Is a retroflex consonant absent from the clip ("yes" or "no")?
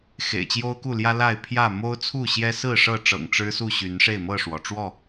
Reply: no